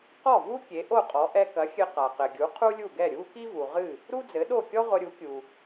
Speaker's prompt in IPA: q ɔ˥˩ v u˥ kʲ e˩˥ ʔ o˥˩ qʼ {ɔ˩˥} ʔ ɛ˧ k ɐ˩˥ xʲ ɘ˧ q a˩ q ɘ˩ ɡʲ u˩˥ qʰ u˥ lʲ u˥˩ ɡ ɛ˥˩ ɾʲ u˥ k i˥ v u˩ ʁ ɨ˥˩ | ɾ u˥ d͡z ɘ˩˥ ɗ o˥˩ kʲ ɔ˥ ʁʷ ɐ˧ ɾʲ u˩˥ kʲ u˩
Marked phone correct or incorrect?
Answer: correct